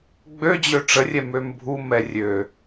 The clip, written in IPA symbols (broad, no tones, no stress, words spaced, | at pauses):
ɡ͡bød͡ʑø ʈ͡ʂərʲɛ mømbʱu mɛrʲø